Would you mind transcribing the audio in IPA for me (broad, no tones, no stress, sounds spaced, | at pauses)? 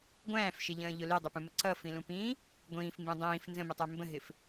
ɡʷ æ̃ː f ʃ ɪ ʎ ə̃ː ʎ ʊ l i dˤ ʊ p ũ m ə ǀ ʌ f ĩ l ũ p ĩː | ɡʷ ĩː f m b ĩ dˤ ĩː f n z ə̃ m i tˤ ɛ m b ə̃ ɦ ɪ f